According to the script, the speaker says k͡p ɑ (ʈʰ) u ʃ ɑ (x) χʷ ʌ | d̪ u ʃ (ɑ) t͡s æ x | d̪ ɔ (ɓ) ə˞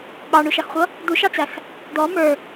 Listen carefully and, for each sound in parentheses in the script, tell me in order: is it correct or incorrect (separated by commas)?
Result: incorrect, correct, correct, incorrect